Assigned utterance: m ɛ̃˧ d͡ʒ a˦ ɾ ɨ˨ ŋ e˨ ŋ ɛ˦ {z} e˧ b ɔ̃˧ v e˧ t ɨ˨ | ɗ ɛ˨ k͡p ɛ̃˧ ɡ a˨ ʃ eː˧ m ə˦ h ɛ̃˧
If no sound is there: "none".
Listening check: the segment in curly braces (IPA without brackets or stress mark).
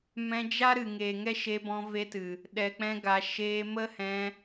ʃ